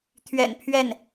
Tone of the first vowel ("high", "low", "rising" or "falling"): low